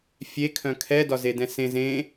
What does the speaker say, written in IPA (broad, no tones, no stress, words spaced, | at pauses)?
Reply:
fʲe kʰœ̃kʰɛdɒ zedɛ̃sẽz ẽ